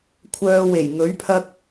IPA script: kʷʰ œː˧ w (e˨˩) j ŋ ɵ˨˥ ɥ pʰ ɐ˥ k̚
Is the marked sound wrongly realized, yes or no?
no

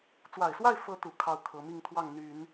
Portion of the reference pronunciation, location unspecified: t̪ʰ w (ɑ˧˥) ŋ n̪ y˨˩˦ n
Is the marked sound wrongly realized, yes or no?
yes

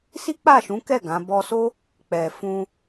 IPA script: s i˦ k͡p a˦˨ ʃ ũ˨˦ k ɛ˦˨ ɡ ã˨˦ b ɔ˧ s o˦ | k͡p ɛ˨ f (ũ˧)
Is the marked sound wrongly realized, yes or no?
no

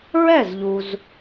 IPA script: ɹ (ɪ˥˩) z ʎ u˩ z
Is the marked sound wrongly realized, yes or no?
yes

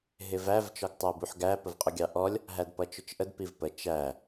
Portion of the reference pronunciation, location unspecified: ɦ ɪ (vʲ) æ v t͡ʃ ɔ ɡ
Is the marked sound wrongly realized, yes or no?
yes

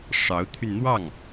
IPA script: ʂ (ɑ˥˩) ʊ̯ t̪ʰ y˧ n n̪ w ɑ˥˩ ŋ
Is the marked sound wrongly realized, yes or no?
yes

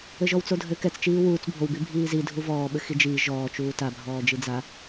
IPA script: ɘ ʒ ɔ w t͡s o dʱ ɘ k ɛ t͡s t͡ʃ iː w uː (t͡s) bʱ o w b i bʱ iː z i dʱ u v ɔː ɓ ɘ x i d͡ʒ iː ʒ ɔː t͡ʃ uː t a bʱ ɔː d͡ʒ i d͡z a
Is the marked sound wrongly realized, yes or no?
no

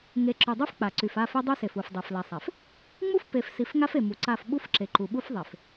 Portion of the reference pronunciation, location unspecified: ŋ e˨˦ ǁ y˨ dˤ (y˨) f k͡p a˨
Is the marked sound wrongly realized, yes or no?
yes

